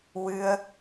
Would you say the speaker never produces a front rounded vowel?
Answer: yes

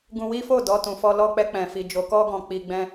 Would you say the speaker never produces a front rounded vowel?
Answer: yes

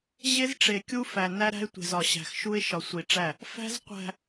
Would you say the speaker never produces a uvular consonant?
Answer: no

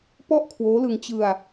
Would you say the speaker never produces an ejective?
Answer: yes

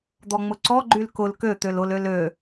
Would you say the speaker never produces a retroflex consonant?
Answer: yes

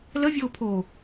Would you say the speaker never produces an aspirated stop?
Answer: no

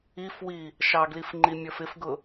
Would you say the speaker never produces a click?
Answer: no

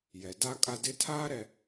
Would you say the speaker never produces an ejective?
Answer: no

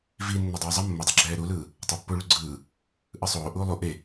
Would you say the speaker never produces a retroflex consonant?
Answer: no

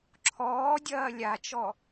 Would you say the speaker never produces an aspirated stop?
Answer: no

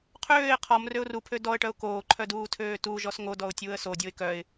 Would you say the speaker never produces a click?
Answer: no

